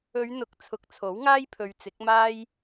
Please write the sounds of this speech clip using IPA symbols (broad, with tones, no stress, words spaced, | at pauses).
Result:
ɵ˨˧ɥn̪ʊ˨˥k̚ t͡sʰʊ˨k̚t͡sʰo˨˥wŋaː˥jpʰɵ˨˧ɥ t͡sɪ˨˥k̚maː˥j